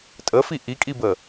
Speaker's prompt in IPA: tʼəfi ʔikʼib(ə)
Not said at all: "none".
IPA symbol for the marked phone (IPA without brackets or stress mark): ə